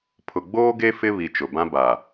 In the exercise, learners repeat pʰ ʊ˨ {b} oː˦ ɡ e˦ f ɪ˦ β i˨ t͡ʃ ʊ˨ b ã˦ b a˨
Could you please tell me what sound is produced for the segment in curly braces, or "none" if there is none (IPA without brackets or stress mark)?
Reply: ɡ͡b